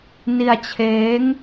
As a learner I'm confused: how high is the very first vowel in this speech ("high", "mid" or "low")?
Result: high